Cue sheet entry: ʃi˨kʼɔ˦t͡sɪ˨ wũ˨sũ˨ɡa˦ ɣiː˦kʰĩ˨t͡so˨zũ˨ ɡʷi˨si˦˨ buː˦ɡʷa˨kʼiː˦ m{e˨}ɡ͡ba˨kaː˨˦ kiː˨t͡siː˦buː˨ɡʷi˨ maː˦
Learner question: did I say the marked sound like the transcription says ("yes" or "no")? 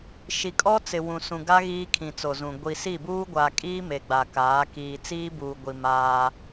yes